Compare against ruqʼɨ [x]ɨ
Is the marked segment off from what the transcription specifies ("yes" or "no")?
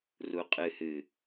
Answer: yes